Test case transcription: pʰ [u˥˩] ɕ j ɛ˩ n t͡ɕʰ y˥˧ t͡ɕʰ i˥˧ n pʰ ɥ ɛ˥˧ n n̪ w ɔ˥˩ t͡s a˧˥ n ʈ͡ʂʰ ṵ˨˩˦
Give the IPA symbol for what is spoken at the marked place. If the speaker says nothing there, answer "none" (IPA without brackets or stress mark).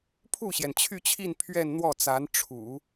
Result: u˥˩